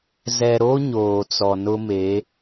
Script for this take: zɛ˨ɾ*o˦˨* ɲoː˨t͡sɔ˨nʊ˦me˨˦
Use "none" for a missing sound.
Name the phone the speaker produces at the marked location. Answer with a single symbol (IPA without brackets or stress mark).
o˦